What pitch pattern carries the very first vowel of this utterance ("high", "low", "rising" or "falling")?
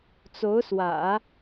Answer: rising